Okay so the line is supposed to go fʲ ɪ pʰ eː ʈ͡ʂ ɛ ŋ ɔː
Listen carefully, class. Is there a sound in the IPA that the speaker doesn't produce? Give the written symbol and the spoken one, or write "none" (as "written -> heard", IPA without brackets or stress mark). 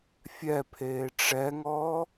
ɪ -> ɛ